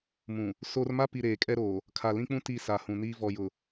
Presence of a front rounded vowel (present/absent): absent